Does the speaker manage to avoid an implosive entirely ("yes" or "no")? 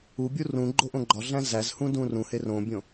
yes